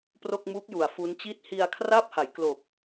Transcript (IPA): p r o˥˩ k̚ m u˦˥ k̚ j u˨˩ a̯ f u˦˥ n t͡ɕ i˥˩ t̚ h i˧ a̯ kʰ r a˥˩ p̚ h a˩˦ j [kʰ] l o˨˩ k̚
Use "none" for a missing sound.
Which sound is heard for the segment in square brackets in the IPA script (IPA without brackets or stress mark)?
k